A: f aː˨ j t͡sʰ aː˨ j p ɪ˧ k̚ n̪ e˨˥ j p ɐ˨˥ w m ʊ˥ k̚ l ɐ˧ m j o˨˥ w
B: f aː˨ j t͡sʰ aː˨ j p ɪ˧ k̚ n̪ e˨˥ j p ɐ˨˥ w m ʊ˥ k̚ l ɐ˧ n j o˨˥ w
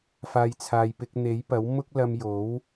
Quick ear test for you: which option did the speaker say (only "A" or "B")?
A